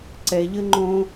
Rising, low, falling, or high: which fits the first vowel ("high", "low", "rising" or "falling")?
high